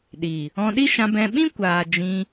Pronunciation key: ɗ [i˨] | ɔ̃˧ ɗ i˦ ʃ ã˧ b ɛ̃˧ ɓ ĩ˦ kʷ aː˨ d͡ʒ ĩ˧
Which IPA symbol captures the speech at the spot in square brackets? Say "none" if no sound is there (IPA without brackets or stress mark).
i˨